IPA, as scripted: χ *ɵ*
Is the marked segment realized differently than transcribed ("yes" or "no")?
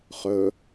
no